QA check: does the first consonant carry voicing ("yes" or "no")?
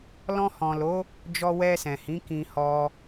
yes